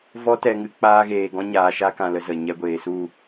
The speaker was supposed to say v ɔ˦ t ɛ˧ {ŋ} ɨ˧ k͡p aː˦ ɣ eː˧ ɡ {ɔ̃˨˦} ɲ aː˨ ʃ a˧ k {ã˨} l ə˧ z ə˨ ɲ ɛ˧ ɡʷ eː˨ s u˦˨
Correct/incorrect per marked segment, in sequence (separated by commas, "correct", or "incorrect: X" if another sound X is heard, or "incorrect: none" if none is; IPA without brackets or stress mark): correct, incorrect: ɔ̃˦, correct